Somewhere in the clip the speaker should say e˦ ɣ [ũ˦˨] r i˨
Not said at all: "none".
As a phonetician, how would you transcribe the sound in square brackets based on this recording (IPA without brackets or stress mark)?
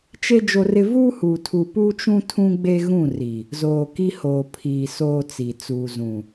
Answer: ũ˦˨